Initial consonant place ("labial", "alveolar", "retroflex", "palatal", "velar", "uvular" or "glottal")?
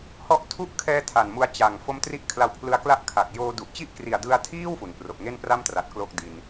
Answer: glottal